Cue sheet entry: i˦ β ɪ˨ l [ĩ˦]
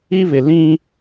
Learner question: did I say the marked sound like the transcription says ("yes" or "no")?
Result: yes